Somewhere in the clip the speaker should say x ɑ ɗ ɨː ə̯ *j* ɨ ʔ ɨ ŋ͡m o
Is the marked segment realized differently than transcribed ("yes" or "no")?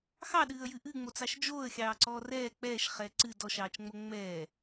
no